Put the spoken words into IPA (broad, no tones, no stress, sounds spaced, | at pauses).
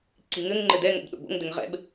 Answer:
ǀ i ŋ ɘ ŋ ŋ͡ǃ ɘ d ɛ ŋ o̰ b ɗ o̰ b o̰ ŋ d ɘ ŋ ʁ ɛ̰ b